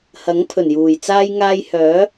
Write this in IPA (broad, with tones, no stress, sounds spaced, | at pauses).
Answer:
h ɐ˨˥ ŋ pʰ ɵ˨˩ n j uː˨˩ j t͡s aː˥ j ŋ aː˥ j h œː˨˥